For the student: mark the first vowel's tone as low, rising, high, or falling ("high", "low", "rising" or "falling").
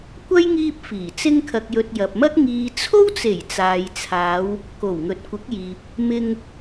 high